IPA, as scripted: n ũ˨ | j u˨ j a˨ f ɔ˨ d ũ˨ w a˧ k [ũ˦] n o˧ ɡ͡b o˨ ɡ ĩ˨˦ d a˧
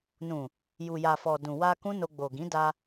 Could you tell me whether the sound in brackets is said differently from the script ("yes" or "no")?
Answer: no